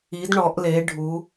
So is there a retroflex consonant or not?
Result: yes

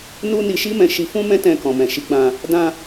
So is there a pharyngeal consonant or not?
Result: no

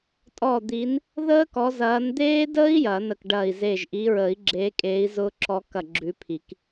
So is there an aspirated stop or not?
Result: yes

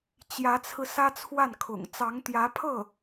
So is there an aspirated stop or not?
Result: yes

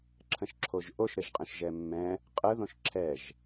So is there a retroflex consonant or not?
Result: no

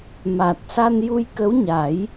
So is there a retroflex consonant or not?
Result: no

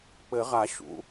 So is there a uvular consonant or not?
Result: yes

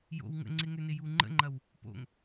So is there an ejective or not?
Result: no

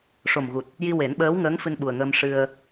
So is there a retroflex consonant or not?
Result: yes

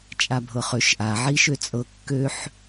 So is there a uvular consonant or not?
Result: yes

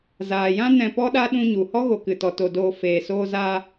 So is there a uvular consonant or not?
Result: no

